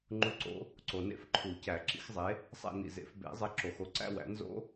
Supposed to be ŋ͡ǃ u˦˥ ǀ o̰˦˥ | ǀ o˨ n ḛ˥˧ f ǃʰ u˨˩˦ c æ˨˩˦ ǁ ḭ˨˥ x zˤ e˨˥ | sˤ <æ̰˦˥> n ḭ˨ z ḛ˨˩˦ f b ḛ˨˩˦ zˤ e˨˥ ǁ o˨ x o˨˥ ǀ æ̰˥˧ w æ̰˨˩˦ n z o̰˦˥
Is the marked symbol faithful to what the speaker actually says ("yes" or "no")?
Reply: no